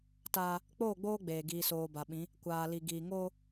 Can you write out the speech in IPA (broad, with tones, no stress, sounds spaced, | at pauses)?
t aː˦ | k͡p oː˦˨ ɡ͡b oː˦ ɡ͡b eː˨ ɡ iː˨ s oː˨ b a˨ ɓ ĩ˨˦ | kʷ aː˨ l i˨ ɡ iː˨ ŋ oː˦